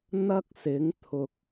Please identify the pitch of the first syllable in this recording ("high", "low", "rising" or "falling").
high